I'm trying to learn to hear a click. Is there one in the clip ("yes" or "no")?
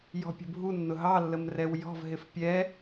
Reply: no